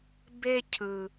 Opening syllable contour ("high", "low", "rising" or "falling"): high